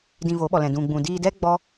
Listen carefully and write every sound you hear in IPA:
d ĩ˧ v o˨˦ ɓ ɔ˨ l ɛ̃˨ d ũ˨ ɡ͡b ũ˨ d iː˧ d ɛ˦ ɡ͡b ɔ˦

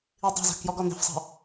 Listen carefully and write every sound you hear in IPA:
i dˤ e̤ z a̤ k j ɔ ɡ ɔ n e̤ f sˤ a̤

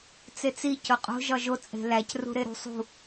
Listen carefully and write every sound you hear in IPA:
t͡s e t͡s i c o qʼ o̤ ʒ ɒ ʒ o t͡sʼ e̤ l æ c r ṳ ɾ e ɾ ṳ sˤ ṳ

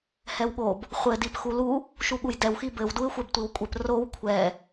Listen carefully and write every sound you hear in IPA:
h ɛ w ɠ o b | χʷ ɘ d i p x u l u | ʃ u ɠ u j d ɛ w x i b ɘ w d u ɪ̯ xʷ ɛ b tʷ i w kʷʼ ɘ p r o w kʷʰ ɛ

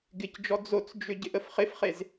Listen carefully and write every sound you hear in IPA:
ɡ ɪ c d͡ʒ ɔ d͡z o t͡s d͡ʒ ʏ ɟ ɪ ʔ ə f χ ɪ f χ e z

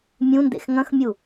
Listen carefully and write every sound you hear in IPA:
mʲ ũ n d ḛ x ŋ ɐ̃ x mʲ u

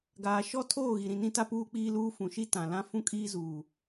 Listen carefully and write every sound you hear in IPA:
ɡ aː˨ ʃ ɔ˦ tʰ oː˦˨ ɣ i˨ ɾ ĩ˨ n ĩ˦ t a˦ p uː˦ k͡p iː˦ l uː˦ f ũ˨ ʃ i˦ t ã˨ l ã˦ f ũ˦ kʼ iː˦ z uː˨

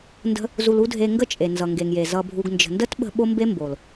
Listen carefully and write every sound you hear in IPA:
n d ə̤˦ | z u˧ l u˦ dʱ e˧ ŋ ɡ ə˦ t͡ʃʼ e˨ n z ʌ˨ ŋ ɡ e˨ ŋ j e˨ z ʌ˧ bʱ u˧ ɡ n d͡ʒ ə̤˨ n d ə˦ t ɓ ə̤˧ ɓ o˦ m b e˦ m b o˨ l

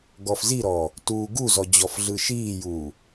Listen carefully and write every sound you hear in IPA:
ɡ ɔ f z i ɾ ɔ | t uː ɡ u z ɔ d͡ʑ ɔ f ɮ ɯ ʃ iː j uː

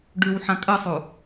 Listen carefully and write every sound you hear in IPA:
ɖ ʉ w ħ ã kʼ ə sˤ u

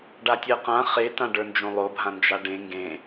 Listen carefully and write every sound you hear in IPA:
ɖ a tʲ ɜ q ã χ e t ã ɖ ə˞ n d͡ʒ õ lˠ o bʱ ã n d͡ʒ a ɖ ẽ ŋ ɡ ẽ

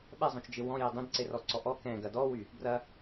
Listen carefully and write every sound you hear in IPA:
ɓ ɛ zˤ õ t͡ʃ d͡ʒ ɪ w ɔ̃ j e dˤ ẽ d ǀ e r ɔ ǀ ɔ ʔ ɔ k ɛ̃ ɡ ɐ d ɔ w y | b r ɐ

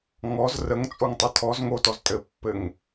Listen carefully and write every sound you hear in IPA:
ŋ ɔ z r ə ŋ t͡sʼ o ŋ tˤ ɘ tʰ ɔ z ŋ o t ɔ z tʼ ɘ pː ɘ ŋ

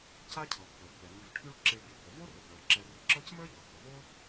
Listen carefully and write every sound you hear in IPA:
c a˥ cʰ ɤ˩ pː ə˞˩ pː ɛ˩ m i˨ v ʈʰ y˦ ɭ ǁ i˨ ɭ b y˩ b ə˩ v o˥ r ə˩ b ɭ ə˞˩ ǁ ɛ˨ r ʊ˨ ǁ ɤ˥ c m ə˞˥ ʎ ɤ˩ h ʊ˩ v o˥

